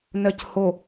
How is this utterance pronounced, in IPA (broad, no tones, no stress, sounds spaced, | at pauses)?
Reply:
n ɜ c h o